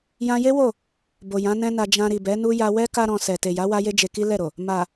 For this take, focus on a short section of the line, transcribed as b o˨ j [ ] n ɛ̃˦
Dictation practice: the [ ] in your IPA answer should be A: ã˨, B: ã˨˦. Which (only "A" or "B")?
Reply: B